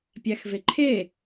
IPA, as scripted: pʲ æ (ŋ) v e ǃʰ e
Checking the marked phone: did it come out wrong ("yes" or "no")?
yes